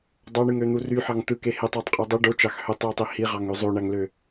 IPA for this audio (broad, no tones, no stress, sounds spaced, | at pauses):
dˤ ɑ ɳ ɯ ŋ ø n̪ u r y ħ ɑ ŋ t̪ ɯ k e h e tˤ æ tˤ qʼ y dˤ e ɖ o t͡ʃ ɑ x h ø tˤ j u tˤ i h i ʁ ɑ ŋ ø zˤ o ɳ æ ŋ l ø